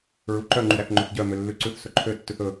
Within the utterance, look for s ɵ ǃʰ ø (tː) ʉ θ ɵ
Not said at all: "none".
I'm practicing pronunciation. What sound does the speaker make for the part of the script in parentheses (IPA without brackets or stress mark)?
tː